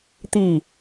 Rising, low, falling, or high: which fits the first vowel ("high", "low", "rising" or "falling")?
falling